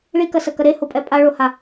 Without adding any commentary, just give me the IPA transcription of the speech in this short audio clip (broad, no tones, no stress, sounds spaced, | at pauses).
ɭ i k ɐ s ɐ k ɐ ɾ e h o pʼ ɛ pʼ a ɭ o h a